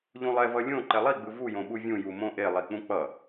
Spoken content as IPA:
ʎ ũ lˠ ɛ v ʌ lʲ õ ǃ ɛ lˠ i ɡ͡b ɯ v u j õ ɓ u vʲ ũ j u m õ ʔ e lˠ i k͡p ũ k͡p ʌ

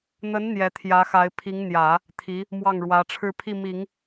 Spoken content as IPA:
n̪ ə˧˥ n n̪ j ɛ˧˥ t̪ʰ j ä˧˥ x a˧˥ ɪ̯ pʰ i˧˥ ŋ n̪ j ä˨˩˦ | t̪ʰ i˧˥ | m w ɑ˥˩ ŋ ɻ w ä˧˥ ʈ͡ʂʰ ɻ̩˥˧ pʰ i˥˩ m i˨˩˦ ŋ

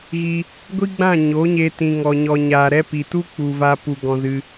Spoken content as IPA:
ɣ i˧ | ɡʷ i˦ ɡ͡b ã˦˨ ɲ o˨˦ ɲ e˧ t ĩ˨ ŋ ɔ˨ ɲ ɔ˨ ɲ aː˨ ɾ ɛ˦ p i˨ t u˦ k͡p u˨ v a˧ p u˧ ɡ ɔ̃˦ z ɨ˦

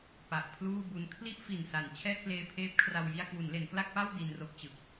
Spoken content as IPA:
p a˨˩ ʔ pʰ l uː˥˩ b u˦˥ n kʰ l i˥˩ ʔ f i˨˩ n s a˩˦ n t͡ɕʰ ɛː˥˩ t̚ p l eː˧ pʰ eː˦˥ p̚ kʰ r a˧ w j i˧ a̯ k w u˩˦ n l e˩˦ n k l a˥˩ k̚ p a˥˩ w d i˧ n r o˦˥ k̚ t͡ɕ ɯ˨˩ k̚

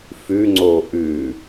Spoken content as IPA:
f ʉ ŋ͡ǀ o ʔ ʉ

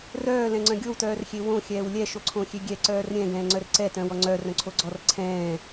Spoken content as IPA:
r œː l ɛ̃ ŋ͡ǀ œ̃ ɡʲ o w t œː r xʲ e w õ xʲ ɛː w lʲ ɛ ʃ o ǀʰ õ xʲ e ɡʲ ɛ ǀ œː r ɾʲ ɛ̃ ɡ ɛ̃ː ŋ͡ǀ œ r ǀ ɛ t œ̃ w ɔ ŋ͡ǀ œ r œ̃ ǀʰ o ɡ͡ǀ ɔ r ǀʰ ɛ̃ː

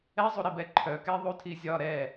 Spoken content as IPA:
ɛ zˤ u ɾ i b ɛ ǃʰ œ k ɛ ðˤ u tʰ i zʲ ɒ ɾ ɛ

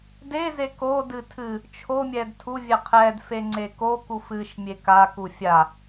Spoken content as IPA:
d e z e k o d ɨ tʰ ɨ | t͡ʃʰ o mʲ ɛ d tʰ u vʲ ɛ qʰ ɛ d f e ŋ͡ǀ e k o k u f ɨ ʃ mʲ e k a k u fʲ a

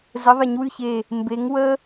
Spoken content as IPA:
z ə˨˥ ðˤ ə˩˧ ɲ w ʉ˥˩ ç e˧˩ | m b e˨˥ ŋ w ə˦˥

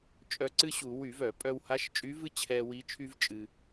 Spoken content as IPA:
t͡ʃʼ œ˧ ǀ ɨ˥ ɕ u˧˩˧ w y˧˩˧ v œ˧˩˧ pʼ œ˧ w h a˧˥ ʃ t͡ʃʼ y˧˥ v ɨ˥ t͡ɕʰ ɛ˧ w i˧˥ t͡ʃʰ y˥ v t͡ʃʼ ɨ˧

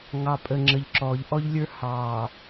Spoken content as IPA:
ŋ ɑ˨ pʼ ə˨ ŋ͡ǁ ə˨ ʎ ǁ ɔː˨ ʎ ʔ ɔ˦ ʎ lʲ ə˞˦ h ɑː˨

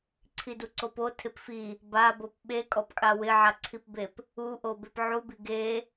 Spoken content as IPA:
ǀʰ i d u ǀ o p o tʰ ɪ p f i | b a b o p ɓ e kʼ ɔ p kʼ a w ɪ ʕ a ǀʰ i p b e p | u ʔ o b e p ʕ u b i ɡ e

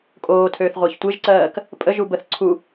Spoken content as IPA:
kʼ oː tʰ øː θ ʁʷ æ ç tʷ e ʒ ǀ ɜː k | pʼ ə ʒ u b ə θ ǀʰ u

